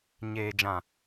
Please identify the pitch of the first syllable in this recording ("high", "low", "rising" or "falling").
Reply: low